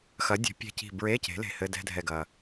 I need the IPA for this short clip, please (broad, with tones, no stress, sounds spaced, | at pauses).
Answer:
x ɐ˩˥ dʲ ɛ̤˩˥ pʲ ɛ̤˧˩ c i̤˧˩ b ɹ e˧˥˧ c e̤˩˥ l e̤˧˩ h ɘ˧˥˧ d ɛ̤˧˥˧ dʱ ɛ˧˩ ɡ ɐ˩